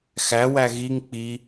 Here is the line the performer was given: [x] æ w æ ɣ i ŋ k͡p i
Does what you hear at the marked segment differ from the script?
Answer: no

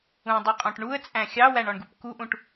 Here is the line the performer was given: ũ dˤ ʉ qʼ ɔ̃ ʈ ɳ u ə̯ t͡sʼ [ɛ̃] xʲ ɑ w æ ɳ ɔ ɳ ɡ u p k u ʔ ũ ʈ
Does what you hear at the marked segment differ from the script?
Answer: yes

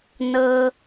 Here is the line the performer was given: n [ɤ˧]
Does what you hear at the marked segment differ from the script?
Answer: no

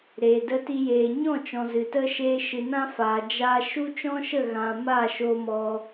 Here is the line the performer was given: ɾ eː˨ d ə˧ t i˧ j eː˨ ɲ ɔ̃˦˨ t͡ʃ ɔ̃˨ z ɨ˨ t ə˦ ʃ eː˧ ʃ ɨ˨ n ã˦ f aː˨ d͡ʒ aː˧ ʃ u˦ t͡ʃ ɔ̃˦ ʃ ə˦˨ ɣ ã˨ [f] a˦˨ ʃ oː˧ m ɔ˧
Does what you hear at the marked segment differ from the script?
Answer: yes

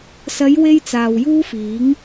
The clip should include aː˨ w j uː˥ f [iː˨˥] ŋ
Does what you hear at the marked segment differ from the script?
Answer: no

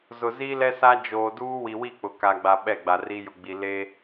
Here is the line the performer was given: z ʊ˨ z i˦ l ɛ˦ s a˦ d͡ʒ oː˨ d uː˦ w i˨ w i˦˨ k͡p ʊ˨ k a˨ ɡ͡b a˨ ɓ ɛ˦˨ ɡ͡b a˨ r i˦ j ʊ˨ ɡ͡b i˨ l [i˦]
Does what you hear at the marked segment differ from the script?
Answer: yes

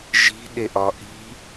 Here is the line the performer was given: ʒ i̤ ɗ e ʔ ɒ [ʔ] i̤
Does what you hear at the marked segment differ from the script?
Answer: no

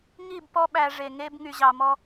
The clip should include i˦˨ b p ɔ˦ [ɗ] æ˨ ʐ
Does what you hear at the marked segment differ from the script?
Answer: yes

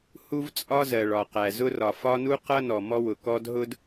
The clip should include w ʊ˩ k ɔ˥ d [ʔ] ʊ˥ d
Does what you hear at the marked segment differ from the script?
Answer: yes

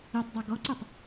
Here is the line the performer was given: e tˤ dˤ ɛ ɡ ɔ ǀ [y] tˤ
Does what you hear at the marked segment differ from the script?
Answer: no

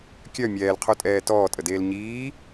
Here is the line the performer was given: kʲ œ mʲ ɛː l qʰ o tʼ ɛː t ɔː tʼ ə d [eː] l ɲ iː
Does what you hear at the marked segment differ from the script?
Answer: no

